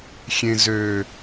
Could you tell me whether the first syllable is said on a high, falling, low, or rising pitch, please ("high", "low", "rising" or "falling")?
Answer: low